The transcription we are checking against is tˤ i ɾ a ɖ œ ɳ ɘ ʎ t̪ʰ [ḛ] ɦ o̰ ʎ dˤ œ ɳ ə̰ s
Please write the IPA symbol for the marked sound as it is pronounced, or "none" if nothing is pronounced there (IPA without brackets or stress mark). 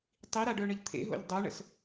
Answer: ḛ